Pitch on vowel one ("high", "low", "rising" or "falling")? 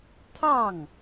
falling